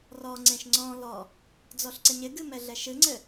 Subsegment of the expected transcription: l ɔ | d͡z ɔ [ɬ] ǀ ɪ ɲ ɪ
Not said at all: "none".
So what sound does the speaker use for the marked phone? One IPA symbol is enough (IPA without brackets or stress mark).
ɬ